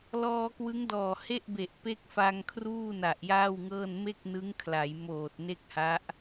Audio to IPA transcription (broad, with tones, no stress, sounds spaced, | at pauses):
l ɔː˧ k w ɯ˦˥ ŋ d ɔː˨˩ h e˥˩ ʔ b e˨˩ ʔ p e˥˩ k̚ f a˧ ŋ kʰ r uː˥˩ n a˨˩ ʔ j aː˥˩ w ŋ ɤː˥˩ n m e˥˩ k̚ n ɯ˦˥ ŋ kʰ l a˩˦ j m oː˨˩ t̚ n e˥˩ k̚ h a˦˥ ʔ